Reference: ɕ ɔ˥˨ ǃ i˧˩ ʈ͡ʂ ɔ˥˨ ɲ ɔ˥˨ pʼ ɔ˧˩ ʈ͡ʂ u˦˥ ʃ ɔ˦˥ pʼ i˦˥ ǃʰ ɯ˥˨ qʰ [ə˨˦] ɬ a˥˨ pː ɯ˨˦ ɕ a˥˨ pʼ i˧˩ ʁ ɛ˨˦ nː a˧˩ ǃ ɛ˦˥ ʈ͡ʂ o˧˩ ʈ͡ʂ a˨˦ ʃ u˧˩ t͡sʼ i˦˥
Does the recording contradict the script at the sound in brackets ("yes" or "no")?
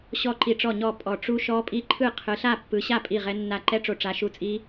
yes